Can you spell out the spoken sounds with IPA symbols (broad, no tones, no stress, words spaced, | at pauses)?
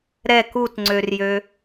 ɾɛk utŋ͡ǀørjø